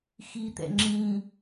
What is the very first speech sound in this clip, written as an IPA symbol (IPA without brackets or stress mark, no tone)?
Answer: x